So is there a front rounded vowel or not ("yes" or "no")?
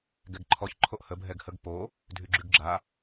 yes